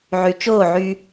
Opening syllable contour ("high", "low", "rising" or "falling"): low